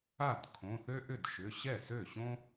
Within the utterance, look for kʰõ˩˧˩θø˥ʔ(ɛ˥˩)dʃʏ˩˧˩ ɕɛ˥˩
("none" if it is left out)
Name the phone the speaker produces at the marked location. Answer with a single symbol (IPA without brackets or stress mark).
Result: ʏ˥˩